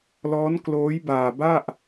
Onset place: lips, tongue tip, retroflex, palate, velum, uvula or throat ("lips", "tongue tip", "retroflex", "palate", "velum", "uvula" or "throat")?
tongue tip